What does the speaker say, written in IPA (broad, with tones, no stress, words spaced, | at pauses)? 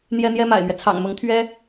n̪jɛ˥n̪jɛ˥ma̰˨˩ɪ̯mɥɛ˦ t͡sʰɑ̰˨˩ŋmʊ˧˥ŋ t̪ʰɥɛ˥